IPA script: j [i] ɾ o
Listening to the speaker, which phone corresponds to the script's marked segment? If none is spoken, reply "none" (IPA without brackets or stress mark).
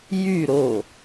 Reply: y